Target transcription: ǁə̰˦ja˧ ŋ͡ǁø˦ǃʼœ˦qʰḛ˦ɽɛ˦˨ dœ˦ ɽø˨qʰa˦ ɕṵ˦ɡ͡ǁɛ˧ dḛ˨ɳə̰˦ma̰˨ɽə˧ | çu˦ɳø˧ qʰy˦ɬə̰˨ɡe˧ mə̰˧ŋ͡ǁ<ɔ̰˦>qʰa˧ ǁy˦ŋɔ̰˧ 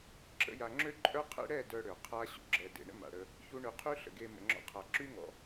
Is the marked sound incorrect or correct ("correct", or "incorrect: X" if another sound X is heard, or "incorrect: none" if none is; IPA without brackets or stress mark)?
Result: correct